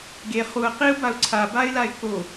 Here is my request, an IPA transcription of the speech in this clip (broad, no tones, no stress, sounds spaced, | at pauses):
ɡ e χ u ə̯ q i ʊ̯ b a ʊ̯ ǀʰ a b a ɪ̯ l a ɪ̯ k o